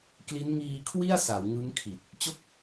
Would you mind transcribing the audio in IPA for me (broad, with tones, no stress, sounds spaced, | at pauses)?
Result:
k l i˦˥ n ŋ iː˧ kʰ w i˥˩ a̯ s a˩˦ w ŋ ɯ˦˥ ŋ kʰ i˨˩ t̚ | t͡ɕ o˥˩ k̚